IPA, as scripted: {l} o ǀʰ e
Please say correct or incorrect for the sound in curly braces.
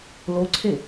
correct